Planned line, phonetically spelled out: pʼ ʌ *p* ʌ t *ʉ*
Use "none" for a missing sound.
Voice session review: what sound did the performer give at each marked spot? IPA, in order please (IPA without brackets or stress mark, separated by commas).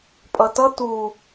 t, u